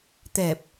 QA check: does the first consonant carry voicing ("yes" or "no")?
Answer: no